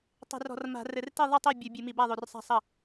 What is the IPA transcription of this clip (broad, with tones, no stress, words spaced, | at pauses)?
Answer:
tˤe̤˧˩˧rɔ̤˧˩˧rma̤˧˩˧rɘ˧˩˧r ti˥˩ðˤɨ˥˩tˤi˥˩ bʲu˧˩˧bʲɨ˧˩˧mi˧˩˧ ba˥˩ðˤo˧˩˧rsˤa̤˥˩ sˤɐ˥˩